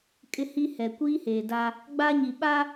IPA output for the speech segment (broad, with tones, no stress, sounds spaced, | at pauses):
kʼ ɪ˦ h i˦ h ɛ˨ kʷ iː˦ h eː˨ d a˦ | ɡ͡b a˦ ɲ i˨ ɓ a˦